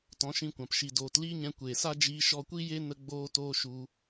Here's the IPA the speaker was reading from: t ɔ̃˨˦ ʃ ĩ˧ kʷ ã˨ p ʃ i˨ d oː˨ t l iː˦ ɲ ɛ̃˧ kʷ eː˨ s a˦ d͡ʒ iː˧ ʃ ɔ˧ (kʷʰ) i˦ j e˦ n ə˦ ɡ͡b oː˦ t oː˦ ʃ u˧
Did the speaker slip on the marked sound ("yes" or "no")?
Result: yes